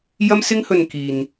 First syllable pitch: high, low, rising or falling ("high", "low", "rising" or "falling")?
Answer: high